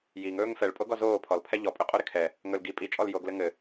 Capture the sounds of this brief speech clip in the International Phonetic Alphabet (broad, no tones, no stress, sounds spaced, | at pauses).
j i ŋ ɵː ŋ f ɛ ɭ pʼ o ɡ ɔ z oː pʰ ɔ l pʰ ɛ ʎ ɔ pʼ ɵ qʼ o ɾ ɪ kʰ ɛ | ŋ ɵ l ɡ i pʼ i t͡ʃʼ ɔ l j oː ɡ l ɘ ŋ ɘ